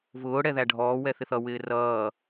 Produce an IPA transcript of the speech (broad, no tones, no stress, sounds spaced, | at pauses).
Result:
v ʊː ɽ ɛ ð æ ɖʱ ɔː w ɛ θ ɪ θ ʌ w ɪː r ʌː